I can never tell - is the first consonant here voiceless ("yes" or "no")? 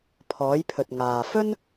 yes